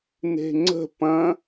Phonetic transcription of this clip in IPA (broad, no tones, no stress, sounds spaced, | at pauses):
n e̤ ŋ͡ǀ ə̤ p ɐ̃